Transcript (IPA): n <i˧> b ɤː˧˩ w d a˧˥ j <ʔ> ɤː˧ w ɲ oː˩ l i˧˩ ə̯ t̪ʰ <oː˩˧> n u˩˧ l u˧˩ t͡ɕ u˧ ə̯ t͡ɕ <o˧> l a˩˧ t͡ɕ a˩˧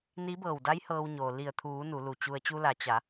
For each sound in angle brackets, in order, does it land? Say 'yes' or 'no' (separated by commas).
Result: no, no, no, no